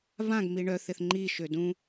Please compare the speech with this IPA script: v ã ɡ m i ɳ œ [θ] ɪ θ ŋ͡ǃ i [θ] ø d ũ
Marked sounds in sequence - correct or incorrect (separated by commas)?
correct, incorrect